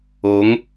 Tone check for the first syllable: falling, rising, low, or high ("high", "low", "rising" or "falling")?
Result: rising